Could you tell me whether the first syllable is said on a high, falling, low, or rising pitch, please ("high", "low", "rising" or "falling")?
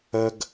high